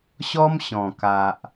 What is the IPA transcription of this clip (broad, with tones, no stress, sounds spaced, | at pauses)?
ɕ ɔ˦ m ɕ ɔ̃˨˩ k a˨ ʔ